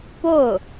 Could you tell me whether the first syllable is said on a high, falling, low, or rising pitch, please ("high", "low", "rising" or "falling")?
falling